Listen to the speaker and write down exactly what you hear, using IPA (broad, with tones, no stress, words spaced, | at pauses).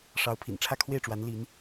ʂɑ˧˥ʊ̯pʰḭ˨˩n ʈ͡ʂʰä˥˧kʰwe˥˩ɪ̯ʈ͡ʂwa˧˥n li˧˥n